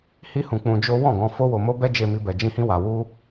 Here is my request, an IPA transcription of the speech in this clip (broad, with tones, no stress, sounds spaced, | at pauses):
h i˦ h ũ˧ k͡p ũ˧ d͡ʒ o˦ w ɔ̃˦˨ ɡ ɔ̃˧ f o˦ w o˧ m o˦ b ɛ˦ d͡ʒ e˧ m i˧ b ɛ˧ d͡ʒ ĩ˦ h ĩ˦ w a˧ w u˦